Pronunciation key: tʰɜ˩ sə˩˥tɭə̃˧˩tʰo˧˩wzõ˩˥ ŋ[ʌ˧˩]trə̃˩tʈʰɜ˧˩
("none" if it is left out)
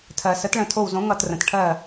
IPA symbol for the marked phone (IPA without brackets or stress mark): ʌ˧˩